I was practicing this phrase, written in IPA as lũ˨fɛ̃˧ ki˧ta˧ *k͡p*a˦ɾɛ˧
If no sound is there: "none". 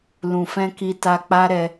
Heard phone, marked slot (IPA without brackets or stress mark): k͡p